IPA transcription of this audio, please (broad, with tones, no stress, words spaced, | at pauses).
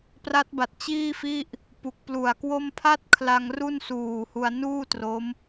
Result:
pra˦˥t̚ba˨˩t̚ t͡ɕiː˥˩fi˥˩ʔ | pu˨˩k̚plu˨˩a̯kwo˥˩m pʰa˥˩t̚kʰla˧ŋ ru˥˩nsuː˨˩hu˧a̯ nuː˥˩tro˦˥m